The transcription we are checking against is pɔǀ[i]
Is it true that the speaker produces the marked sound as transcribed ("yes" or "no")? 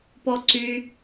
no